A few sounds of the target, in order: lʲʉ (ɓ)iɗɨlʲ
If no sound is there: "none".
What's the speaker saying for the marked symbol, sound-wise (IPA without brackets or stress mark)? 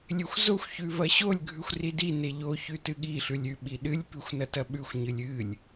ɓ